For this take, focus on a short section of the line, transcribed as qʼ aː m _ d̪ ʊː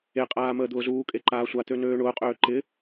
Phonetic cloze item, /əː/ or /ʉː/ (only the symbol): əː